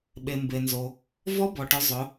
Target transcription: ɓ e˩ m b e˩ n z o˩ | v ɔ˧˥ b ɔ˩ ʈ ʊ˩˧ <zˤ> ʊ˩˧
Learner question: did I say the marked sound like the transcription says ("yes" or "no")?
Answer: yes